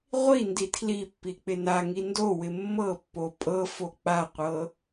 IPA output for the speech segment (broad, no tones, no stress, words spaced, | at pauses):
ʁʷi nditʰlipːi k͡pɪnaŋi ndowɪ mːɤpːo pʼɤ fok͡paqʷɤ